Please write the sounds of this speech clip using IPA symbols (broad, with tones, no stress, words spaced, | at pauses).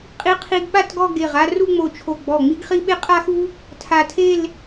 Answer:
qʼi˧ qʰi˧ɡɓa˥˧tɡɔ˥˧ ɡe˧˩ʁ a˥˧ru˥˧ŋ͡mo˧˩t͡ʃʰo˧˩ ɡ͡bɔ˧˩ŋ͡mi˥ɡχi˥ ɓe˥qʼa˥xu˥ | tʰa˧˩tʰe˥˧l